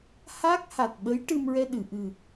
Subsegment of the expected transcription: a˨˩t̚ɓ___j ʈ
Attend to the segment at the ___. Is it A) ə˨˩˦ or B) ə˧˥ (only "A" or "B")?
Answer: B